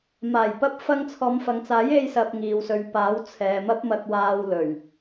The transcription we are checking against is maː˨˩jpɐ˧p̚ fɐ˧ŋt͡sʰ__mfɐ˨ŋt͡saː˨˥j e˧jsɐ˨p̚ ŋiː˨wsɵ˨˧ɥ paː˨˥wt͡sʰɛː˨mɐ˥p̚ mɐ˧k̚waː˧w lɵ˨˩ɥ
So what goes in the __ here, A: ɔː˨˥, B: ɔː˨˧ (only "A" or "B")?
B